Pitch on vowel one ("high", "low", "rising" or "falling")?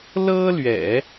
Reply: high